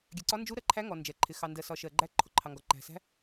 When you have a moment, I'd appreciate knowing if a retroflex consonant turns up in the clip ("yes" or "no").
no